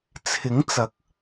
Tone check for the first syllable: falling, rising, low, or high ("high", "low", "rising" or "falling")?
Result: rising